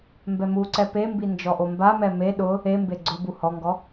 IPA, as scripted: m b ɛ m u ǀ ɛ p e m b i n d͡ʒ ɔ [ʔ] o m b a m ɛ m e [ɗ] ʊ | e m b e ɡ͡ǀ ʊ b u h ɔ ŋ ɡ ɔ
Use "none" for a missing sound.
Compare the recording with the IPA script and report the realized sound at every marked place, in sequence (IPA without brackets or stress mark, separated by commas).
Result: ʔ, ɗ